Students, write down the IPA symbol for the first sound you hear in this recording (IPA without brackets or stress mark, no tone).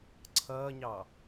ǀʰ